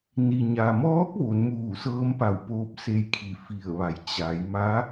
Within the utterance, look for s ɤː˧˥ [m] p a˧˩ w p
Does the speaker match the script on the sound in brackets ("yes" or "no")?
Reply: yes